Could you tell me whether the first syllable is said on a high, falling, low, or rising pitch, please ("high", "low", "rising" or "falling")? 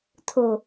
low